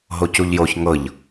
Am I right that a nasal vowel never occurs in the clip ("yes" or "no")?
yes